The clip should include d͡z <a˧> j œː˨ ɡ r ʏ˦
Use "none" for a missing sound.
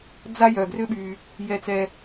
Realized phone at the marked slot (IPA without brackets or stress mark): a˧